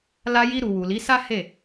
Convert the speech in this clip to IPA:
l a˧ j i˧ ɾ u˨ w u˨ l i˨˦ s a˦ h e˦˨

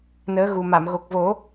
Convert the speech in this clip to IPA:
n əː˧˥ ɣ u˨˩ m a˨˩˨ m ɣ o˨˩ k̚ v o˨˩˦

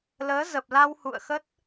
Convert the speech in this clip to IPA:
l əː˨˦ z ə˨˩ p̚ l a˧ w h ṵ˧˨ ə̯ x ə˦˥ t̚

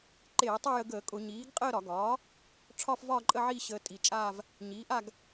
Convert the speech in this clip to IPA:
ǃ eː˧˩˧ tˤ ʊ˥˧ j ə˧ ɡ əː˧˩˧ kʼ ʊ˧˩˧ ɲ iː˩˥ ɡ qʼ əː˥˧ ɾ ɒ˧˩˧ ɡ ɒː˩˥ | ʈ͡ʂʰ ɒ˥˧ f v ɒː˥˧ ǃʼ ə˥˧ ʕ i˥˧ ɕ ə˧ tʼ i˨˩ t͡ʃʼ aː˥˧ v | ɲ iː˩˥ ʔ a˥˧ ɡ

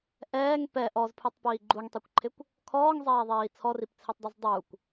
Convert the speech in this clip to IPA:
ʔ ɛː ŋ p ɛ ʔ ɔ z pʰ u tˤ p iː ɡ͡ǃ u ŋ tˤ i kʷ ǃʰ ɪ kʷ | kʰ ɔː ŋ zˤ ɛː ðˤ iː t͡sʰ ɔ r i p t͡sʰ i tˤ dˤ i z dˤ u kʷ

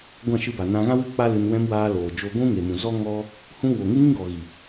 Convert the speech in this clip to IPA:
ɡʷ ã˦˨ ʃ ɨ˧ b a˨ n ã˧ ɣ ã˦ w ɨ˦˨ k͡p a˦ l ɨ˧ n w ɛ̃˧ m w aː˧ l oː˨ d͡ʒ o˧ ɡʷ ũ˦ ŋ e˨ m ũ˨ z ɔ˦ ŋ ɔ˦ | h ũ˦ w o˨ ŋ ɨ˦ ŋ ĩ˦ ɡ ɔ˨ ɣ i˨

